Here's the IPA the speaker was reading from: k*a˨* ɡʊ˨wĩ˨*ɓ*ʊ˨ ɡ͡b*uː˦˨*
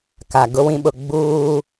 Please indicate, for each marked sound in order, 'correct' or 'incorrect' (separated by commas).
correct, correct, incorrect